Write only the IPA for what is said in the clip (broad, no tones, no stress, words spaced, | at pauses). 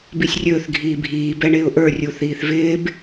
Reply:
bisʲrʲɵːθ ɡʱiːbʱiː bɛɳɪːʊ̯ʔə˞ rʲuθiːθvɪːb